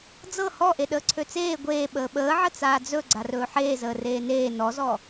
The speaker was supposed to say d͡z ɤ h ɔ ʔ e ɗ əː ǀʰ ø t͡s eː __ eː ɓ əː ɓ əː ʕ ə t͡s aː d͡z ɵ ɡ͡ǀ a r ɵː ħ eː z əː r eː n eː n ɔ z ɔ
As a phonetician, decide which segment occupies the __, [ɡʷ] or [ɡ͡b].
ɡʷ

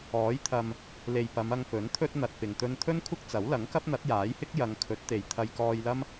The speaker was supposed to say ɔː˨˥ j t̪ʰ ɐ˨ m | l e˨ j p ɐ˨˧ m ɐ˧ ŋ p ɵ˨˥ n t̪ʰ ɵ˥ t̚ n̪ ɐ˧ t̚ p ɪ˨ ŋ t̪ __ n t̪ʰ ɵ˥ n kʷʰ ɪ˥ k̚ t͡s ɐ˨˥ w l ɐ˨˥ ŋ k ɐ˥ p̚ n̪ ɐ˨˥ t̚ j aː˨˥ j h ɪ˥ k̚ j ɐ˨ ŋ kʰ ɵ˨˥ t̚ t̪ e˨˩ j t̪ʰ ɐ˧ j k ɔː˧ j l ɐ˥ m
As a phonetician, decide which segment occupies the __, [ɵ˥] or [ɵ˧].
ɵ˥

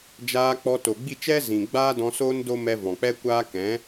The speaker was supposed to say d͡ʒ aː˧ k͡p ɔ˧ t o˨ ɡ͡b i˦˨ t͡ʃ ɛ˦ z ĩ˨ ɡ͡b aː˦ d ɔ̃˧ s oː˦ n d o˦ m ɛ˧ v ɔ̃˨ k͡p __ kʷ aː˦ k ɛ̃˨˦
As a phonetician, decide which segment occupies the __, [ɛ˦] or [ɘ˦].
ɛ˦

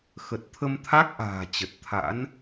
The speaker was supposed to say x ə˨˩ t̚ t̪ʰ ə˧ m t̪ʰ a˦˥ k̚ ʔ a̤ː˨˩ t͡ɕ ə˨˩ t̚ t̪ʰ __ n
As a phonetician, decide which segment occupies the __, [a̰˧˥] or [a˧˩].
a̰˧˥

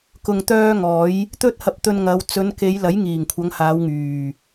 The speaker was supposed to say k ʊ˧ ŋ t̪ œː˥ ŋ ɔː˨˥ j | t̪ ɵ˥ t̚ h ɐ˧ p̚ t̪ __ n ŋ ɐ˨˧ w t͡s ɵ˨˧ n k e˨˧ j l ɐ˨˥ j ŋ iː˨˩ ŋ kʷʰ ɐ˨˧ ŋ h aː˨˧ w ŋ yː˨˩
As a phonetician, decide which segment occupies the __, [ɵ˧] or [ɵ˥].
ɵ˧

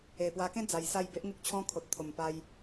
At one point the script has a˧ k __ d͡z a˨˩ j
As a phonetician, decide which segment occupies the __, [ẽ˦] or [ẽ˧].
ẽ˦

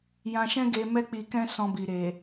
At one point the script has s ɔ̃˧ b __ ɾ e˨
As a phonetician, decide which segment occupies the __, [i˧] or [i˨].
i˨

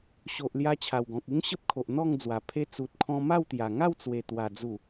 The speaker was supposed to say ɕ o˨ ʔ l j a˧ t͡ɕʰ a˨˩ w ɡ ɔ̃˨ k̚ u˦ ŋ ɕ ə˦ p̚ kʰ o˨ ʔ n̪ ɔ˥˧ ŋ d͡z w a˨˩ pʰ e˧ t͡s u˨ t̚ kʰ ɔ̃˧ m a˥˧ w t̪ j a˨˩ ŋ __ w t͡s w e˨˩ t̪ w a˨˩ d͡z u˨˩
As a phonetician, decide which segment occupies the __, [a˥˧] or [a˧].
a˥˧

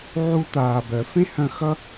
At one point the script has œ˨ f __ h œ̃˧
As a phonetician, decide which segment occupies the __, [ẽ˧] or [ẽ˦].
ẽ˦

